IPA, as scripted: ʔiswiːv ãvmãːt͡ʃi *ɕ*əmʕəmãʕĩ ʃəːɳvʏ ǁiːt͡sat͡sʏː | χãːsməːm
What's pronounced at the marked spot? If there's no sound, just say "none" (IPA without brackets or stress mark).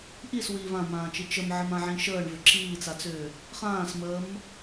t͡ʃ